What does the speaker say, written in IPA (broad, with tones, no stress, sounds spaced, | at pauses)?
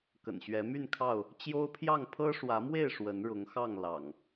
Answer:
k ə̰˨˩ n ɕ ɥ ɛ˨˦ m y˥˨ n kʰ ɑ˥˨ ʊ̯ | t͡ɕ j o˦ ʊ̯ pʰ j ɑ˥˨ ŋ pʰ ɤ˦ ʂ w ä˨˦ m w e˥˨ ɪ̯ ʂ w ə˨˦ n ɻ ʊ˨˦ ŋ x ɑ˥˨ ŋ l ɑ̰˨˩ ŋ